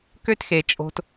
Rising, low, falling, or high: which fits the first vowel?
high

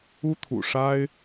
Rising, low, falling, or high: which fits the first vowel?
high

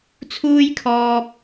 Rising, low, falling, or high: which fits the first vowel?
high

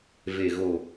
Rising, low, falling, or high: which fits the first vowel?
low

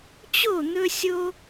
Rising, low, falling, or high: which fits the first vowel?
falling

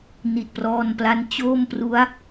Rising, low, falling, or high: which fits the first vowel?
low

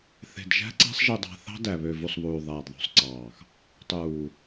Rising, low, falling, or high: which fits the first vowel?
low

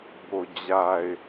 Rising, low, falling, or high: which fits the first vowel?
low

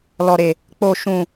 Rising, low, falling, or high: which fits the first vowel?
low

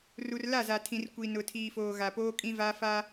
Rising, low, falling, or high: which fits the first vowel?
low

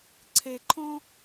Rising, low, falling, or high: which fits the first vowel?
low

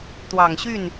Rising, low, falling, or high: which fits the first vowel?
low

